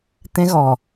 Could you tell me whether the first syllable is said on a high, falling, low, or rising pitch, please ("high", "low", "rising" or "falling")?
high